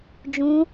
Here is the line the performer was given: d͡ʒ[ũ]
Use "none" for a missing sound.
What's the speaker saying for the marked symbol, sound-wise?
ũ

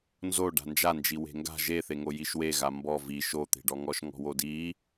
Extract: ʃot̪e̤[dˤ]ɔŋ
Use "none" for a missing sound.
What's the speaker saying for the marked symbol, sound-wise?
ɖ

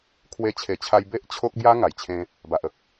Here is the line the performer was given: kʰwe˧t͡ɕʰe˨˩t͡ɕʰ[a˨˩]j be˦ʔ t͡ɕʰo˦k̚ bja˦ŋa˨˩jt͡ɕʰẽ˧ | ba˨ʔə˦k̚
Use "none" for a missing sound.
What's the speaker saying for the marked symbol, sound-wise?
a˧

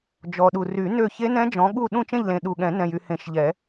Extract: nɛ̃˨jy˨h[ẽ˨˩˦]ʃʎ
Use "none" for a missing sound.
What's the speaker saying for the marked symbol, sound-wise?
ẽ˨˩˦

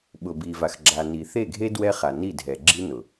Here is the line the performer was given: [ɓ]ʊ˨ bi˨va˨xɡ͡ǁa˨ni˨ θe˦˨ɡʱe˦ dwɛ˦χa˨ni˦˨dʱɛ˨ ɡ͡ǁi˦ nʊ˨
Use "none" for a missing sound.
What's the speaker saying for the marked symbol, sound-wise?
ɓ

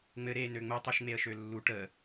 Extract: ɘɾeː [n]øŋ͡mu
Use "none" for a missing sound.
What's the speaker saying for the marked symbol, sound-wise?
n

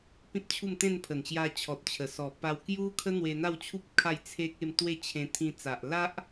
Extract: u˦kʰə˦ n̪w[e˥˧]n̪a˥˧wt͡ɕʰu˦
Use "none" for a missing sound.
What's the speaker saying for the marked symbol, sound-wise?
e˧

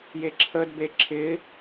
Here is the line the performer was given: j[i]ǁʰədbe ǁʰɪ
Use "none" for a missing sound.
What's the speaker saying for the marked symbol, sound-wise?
e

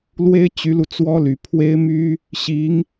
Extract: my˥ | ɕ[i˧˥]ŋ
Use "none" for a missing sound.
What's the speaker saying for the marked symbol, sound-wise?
i˧˥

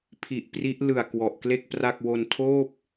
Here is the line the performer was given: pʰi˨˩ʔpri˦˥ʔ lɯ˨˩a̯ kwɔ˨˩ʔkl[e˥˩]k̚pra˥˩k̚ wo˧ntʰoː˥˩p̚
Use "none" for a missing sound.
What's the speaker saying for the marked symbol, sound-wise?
e˥˩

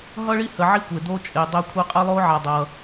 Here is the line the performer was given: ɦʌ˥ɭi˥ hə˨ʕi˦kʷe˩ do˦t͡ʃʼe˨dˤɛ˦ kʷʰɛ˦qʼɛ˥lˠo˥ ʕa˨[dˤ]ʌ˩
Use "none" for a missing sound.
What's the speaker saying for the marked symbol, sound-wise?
dˤ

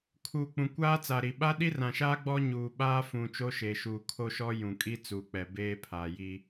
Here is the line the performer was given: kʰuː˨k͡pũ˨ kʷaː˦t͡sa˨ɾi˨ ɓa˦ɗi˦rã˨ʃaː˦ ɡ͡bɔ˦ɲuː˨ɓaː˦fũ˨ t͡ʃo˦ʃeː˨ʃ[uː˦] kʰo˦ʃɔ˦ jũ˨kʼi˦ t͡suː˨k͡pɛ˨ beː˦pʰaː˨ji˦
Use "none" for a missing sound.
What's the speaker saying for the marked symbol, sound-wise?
uː˨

